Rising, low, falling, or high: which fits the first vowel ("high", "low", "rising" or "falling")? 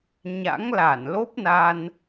rising